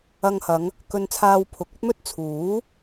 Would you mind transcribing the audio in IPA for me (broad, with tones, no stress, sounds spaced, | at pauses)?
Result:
ɐ˧ ŋ h ɐ˨˧ ŋ | k ɵ˧ n t͡sʰ aː˧ w pʰ ʊ˨˥ k̚ ɵ˥ t̚ m ɵ˥ t̚ t͡sʰ uː˨˥